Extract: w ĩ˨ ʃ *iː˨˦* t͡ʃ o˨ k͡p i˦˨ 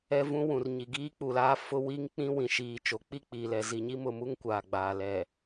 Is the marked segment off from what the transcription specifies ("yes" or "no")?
yes